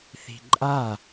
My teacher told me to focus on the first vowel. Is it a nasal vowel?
no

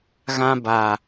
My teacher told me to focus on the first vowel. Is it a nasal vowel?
yes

